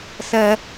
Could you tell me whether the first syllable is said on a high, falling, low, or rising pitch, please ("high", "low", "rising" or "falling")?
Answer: high